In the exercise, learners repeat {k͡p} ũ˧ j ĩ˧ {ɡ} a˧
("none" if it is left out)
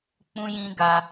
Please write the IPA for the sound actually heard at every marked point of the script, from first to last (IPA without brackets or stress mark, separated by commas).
k͡p, ɡ